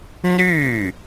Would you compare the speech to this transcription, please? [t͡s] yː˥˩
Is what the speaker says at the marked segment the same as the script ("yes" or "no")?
no